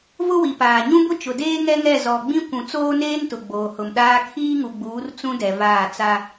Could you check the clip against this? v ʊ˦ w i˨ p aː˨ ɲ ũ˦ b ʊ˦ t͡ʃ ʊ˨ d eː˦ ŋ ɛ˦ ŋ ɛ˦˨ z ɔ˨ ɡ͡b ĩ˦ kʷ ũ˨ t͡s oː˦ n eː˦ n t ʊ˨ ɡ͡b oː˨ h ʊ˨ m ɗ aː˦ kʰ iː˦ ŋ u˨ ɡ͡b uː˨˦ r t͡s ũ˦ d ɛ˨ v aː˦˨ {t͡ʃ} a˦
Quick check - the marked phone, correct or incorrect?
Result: incorrect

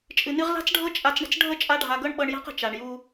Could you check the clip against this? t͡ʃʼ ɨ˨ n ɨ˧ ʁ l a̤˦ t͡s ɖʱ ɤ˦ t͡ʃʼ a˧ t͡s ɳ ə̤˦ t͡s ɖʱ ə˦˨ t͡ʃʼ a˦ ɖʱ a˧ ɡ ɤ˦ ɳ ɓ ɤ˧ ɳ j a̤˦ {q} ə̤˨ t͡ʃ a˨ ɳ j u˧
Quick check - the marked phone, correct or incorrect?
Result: correct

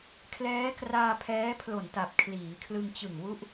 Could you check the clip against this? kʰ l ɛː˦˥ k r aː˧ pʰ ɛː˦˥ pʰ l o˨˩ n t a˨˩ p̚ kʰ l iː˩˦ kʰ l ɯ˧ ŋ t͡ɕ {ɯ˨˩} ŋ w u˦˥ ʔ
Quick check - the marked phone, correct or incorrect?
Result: correct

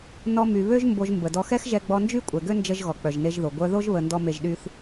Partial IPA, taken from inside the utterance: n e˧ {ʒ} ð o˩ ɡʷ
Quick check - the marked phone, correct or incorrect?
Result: correct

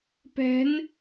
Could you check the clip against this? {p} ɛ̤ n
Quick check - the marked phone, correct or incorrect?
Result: correct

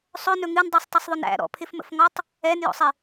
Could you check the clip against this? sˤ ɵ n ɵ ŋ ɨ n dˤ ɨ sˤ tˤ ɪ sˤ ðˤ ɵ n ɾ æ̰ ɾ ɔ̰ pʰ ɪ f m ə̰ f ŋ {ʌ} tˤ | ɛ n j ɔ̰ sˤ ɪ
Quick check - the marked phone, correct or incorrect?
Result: incorrect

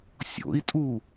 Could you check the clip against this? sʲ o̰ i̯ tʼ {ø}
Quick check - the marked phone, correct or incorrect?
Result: incorrect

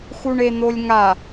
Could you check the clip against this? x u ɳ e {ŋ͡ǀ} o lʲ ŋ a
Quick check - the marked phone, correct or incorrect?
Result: incorrect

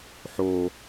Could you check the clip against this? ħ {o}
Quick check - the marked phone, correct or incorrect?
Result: correct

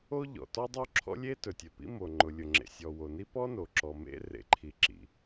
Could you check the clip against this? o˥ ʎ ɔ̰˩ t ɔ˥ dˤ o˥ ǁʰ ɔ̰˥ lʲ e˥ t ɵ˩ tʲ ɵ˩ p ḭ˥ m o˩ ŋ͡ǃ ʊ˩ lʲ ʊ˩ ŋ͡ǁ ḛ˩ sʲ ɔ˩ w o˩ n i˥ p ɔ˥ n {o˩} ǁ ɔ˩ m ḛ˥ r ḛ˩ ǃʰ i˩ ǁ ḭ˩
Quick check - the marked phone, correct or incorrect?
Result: correct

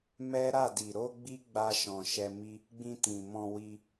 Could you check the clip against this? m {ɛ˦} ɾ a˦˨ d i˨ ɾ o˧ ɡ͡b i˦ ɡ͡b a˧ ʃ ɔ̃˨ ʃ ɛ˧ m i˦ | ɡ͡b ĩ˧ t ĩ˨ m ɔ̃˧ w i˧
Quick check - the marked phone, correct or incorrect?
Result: correct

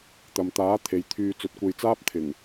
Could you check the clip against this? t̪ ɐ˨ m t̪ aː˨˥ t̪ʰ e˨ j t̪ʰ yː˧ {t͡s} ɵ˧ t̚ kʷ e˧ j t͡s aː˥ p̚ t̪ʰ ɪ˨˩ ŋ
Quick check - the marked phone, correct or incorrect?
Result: correct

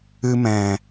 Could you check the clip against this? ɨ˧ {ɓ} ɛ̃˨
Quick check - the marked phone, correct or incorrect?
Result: incorrect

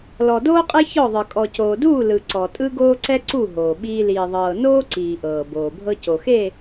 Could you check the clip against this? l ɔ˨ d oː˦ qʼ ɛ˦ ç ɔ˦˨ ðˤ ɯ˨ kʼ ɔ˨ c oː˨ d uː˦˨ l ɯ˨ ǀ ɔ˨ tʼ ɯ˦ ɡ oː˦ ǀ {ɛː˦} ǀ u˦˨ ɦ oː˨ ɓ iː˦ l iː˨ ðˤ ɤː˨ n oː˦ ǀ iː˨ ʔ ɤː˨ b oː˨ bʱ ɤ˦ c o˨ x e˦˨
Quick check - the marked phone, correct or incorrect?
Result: incorrect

